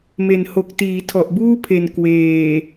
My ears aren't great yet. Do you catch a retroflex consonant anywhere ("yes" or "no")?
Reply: no